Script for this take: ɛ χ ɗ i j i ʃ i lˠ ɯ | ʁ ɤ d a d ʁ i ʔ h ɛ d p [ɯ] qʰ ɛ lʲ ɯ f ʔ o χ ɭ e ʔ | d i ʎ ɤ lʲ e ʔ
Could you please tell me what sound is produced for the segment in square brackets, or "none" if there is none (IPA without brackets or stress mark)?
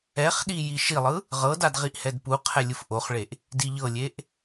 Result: u